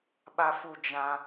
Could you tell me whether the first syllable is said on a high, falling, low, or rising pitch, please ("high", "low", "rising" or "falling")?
high